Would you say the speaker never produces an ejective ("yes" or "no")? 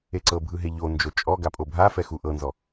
no